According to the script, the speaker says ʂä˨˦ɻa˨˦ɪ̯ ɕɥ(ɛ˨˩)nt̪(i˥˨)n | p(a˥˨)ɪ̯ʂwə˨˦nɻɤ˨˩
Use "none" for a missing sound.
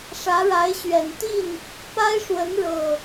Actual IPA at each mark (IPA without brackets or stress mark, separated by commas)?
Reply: ɛ˨˩, i˥˨, a˦